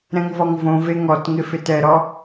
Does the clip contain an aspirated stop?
no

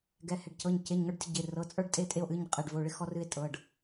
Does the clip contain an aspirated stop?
no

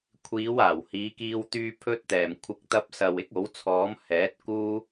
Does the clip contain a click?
no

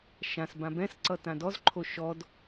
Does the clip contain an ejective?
no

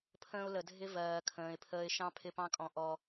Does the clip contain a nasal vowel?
yes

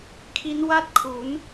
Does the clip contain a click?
no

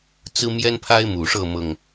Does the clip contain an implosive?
no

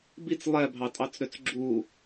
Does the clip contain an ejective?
yes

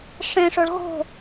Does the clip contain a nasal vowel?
yes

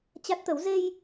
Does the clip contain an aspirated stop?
no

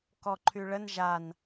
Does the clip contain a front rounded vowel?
yes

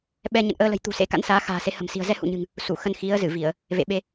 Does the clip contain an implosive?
yes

